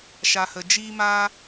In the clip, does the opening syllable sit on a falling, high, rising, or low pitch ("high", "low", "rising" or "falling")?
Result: low